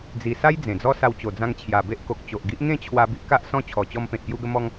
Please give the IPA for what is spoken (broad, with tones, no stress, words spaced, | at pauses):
d͡zi˨˩sa˦j d͡zẽ˨˩d͡zɔ˦sa˧w t͡ɕo˨˩d͡zã˧ŋt͡ɕʰja˨˩be˦ʔ ko˨k̚ t͡ɕo˨ʔɡi˦ʔ ŋẽ˥˧t͡ɕʰwa˧ bi˦ʔka˦ʔ sɔ̃˦t͡ɕʰɔ˨˩t͡ɕɔ˧mpẽ˨t̚ pju˧ɡə˧mɔ˧ŋ